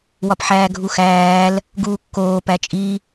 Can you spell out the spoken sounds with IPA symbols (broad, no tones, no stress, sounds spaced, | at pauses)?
w ɒ p ħ æː ɡʱ u x æː l | ɡ uː kː oː p æ t͡ʃʼ i